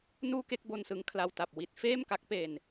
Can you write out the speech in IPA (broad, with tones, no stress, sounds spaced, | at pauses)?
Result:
n uː˥˩ k e˥˩ k̚ b o˧ n s ɯ˦˥ ŋ kʰ l a˧ w t a˨˩ p̚ w i˥˩ t̚ f eː˥˩ m k a˦˥ k̚ p e˧ n